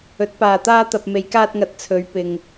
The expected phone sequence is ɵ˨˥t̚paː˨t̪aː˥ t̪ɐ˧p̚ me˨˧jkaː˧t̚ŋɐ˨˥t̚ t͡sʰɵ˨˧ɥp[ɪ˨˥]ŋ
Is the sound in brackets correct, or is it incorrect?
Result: incorrect: ɪ˨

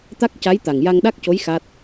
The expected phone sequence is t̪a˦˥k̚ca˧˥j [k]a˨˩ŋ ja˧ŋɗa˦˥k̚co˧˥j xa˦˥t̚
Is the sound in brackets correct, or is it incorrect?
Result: incorrect: t̪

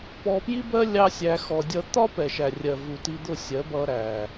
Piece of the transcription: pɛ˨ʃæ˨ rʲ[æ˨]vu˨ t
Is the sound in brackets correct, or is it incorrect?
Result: incorrect: ɜ˨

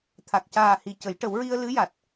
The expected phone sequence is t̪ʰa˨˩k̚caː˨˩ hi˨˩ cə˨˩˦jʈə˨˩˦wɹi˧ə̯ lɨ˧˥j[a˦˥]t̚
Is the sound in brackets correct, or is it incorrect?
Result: incorrect: a˨˩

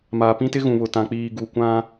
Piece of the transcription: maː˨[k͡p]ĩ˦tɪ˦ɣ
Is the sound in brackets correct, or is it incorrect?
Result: incorrect: p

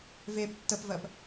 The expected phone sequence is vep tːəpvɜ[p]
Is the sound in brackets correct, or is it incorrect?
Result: correct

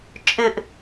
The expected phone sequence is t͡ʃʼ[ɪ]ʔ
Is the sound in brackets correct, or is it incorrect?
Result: correct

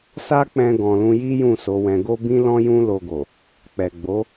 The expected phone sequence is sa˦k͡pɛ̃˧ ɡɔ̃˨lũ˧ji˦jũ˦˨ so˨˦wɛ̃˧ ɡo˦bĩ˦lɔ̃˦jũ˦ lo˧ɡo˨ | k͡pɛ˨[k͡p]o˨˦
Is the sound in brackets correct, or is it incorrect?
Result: incorrect: ɡ͡b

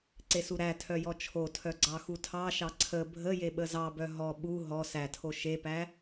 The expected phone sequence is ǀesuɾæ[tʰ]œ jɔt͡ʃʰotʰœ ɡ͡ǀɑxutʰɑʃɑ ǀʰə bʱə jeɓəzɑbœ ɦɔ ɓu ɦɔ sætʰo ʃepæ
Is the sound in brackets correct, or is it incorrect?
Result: correct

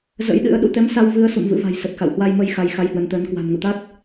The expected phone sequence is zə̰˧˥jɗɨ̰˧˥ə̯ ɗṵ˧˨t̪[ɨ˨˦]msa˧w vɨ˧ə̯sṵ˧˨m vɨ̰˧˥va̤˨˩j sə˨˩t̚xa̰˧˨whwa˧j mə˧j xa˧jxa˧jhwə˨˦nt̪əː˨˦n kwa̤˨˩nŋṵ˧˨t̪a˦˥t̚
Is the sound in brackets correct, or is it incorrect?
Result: incorrect: ɛ˨˦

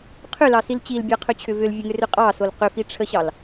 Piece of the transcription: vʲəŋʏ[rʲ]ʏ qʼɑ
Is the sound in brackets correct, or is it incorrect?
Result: incorrect: r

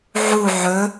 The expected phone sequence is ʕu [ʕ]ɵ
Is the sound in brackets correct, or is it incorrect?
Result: correct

